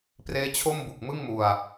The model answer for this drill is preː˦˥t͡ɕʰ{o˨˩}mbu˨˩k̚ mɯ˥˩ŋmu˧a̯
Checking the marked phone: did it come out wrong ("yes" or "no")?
yes